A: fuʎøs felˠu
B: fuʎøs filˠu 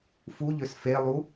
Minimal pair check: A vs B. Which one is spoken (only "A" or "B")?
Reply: A